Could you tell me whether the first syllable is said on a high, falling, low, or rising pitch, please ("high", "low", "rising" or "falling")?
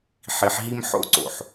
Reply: low